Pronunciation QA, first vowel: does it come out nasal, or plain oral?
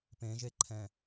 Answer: nasal